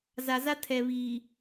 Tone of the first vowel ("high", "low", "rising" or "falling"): low